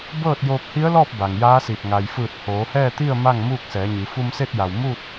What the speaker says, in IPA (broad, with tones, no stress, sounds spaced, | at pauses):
b ɤː˥˨ t̚ j oː˧ p̚ h i˧˥ ə̯ l ɔː˥˨ p̚ b a˩ ŋ j aː˧˥ s i˧˩ p̚ ŋ a˩ j f ɯː˧˩ t̚ h oː˩˧ h ɛː˥˨ t̪ i˥˨ ə̯ m a˥˨ ŋ m uː˥˨ k̚ s ɛː˩˧ ɲ i˩˧ f u˧ m s e˥˨ t̚ j a˩ w m u˥˨ t̚